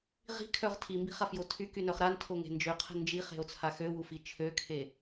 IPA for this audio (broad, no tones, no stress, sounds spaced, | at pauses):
ʁ i̤ kʰ œ ʁ tʰ i m b i̤ χ a f j o tʰ y k y n œ χ ɾ a n tʰ o ŋ e̤ n d͡ʒ ø qʰ ə̤ n d͡ʒ i χ e̤ o̯ t͡sʰ a x ø w u f i t͡ʃʰ ø kʰ e